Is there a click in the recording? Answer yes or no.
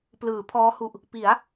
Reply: no